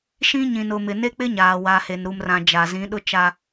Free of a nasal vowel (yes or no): no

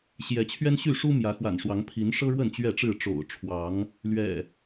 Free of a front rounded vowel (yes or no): no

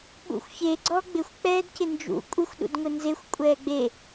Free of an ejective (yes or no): no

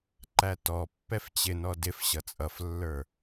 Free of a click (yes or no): no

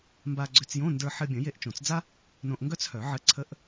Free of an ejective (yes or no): yes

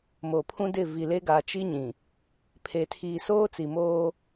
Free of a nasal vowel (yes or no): no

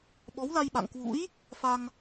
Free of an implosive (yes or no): no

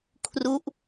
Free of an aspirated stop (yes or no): no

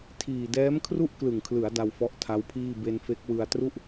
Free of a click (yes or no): yes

